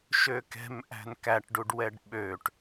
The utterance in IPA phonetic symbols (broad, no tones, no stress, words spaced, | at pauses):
ʃøkɛ̤m ʔæ̤nkæʈ ɖuɖwɛɖɓøʈ